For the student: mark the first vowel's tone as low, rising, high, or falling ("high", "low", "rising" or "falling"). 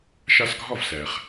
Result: high